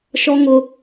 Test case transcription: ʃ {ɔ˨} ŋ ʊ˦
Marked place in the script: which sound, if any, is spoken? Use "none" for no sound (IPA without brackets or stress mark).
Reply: ɔ˦